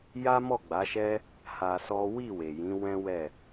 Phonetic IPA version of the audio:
j a˦ m ɔ˦˨ ɡ͡b a˨˦ ʃ ɛ˦ | h a˧ s ɔ˦ w i˦˨ w e˨ j ĩ˨˦ w ɛ̃˦ w ɛ˦˨

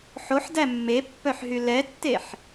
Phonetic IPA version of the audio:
ħ o ħ d æ mː e pː œ ħ ɦ y l ɛ tː e ħ

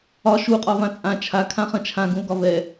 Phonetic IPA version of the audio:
ɒ ʃ u qʼ ɒ v ã t͡sʼ ã t͡ʃʰ a kʰ ã χ ɐ̃ t͡ʃʰ ã ɡ ũ l ɡ ɒ v ɛ

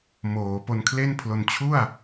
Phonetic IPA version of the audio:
m oː˩˦ p o˧ n kʰ l e˥˩ n pʰ l o˧ n t͡ɕʰ u˥˩ a̯

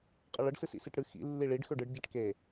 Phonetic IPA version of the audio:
qʼ ə ɭ ə ɖ s ɨ s ḭ s i ʈ ɽ ɨ x ḭ lː i ɭ i ɖ x ø ɖ ɨ ɖ ɟ ɛ ʈ k e

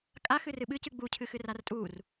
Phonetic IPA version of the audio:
kʼ a x ɨ r ɨ ɓ ɨ c ɨ ɡ͡b u cʰ ɨ x ɨ r a r tʼ u r

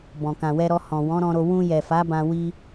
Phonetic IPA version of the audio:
b ɔ̃˨ k ã˨ w ɛ˧ ɾ ɔ˧ h ɔ̃˨ w ɔ̃˨˦ ɾ ɔ̃˧ ɾ o˧ w ũ˧ j ɛ˨ f a˨˦ b ã˧ w i˧

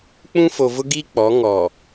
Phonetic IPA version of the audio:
k͡p ũ˦ f o˨ v ʊ˦ ɡ i˦ k͡p ɔ˨˦ ŋ ɔ˨

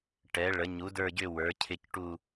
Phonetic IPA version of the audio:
ʈ ɛ˩˥ ɭ ə˩˥ ɲ u˩˥ d ə˞˦˨ ɟ ʏ˦˨ w ə˞˩˥ cʰ ɪ˦˨ c ʈ u˦˨

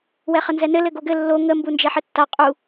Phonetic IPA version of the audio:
w ɛ χ ə n z ɛ n ɘ l ɘ ɡ o ɡ ɘ lː o ŋ ə m b u n d͡ʒ ɛ ħ ɘ tː a qʼ u

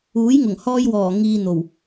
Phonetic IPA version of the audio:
uː˨˥ j ŋ ʊ˨˩ ŋ h ɔː˥ j w ɔː˨˩ ŋ iː˧ n̪ o˨˩ w

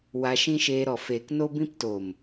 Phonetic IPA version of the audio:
w a˧ ʃ ĩ˦ ʃ eː˧ ɾ ɔ˨ f eː˨ k n o˦ b ĩ˦ p t o˨ m

